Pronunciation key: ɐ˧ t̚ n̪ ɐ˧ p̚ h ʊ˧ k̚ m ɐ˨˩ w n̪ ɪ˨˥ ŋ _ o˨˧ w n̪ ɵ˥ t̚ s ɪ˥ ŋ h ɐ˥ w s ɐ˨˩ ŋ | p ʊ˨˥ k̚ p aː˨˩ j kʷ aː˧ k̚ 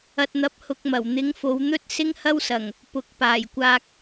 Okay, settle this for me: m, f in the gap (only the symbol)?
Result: f